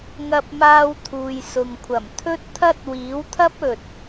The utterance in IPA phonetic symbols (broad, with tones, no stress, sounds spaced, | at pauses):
ŋ ɐ˧ p̚ m aː˧ w t̪ʰ uː˨ j s ʊ˨ ŋ kʷʰ ɐ˨˩ m t̪ʰ ɵ˥ t̚ t̪ʰ ɐ˥ t̚ w iː˨˥ w t̪ʰ ɐ˥ p̚ ɵ˨ t̚